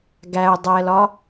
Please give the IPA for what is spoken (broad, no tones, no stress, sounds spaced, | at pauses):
ɡ æ ʊ̯ dˤ ɛ l ɒ